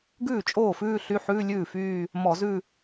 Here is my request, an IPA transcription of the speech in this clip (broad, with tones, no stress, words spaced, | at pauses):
ɡʉː˥˩t͡ʃʼoː˥˩fʉː˥˧ ɬy˧˥˧ħʉː˧˥˧ lʲʉː˥˩fyː˥˧ | mɔ˧˩˧zʉ˥˧